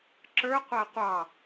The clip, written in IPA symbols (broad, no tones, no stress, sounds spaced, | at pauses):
ǁ ə˞ qʷ æ qʷ ɑ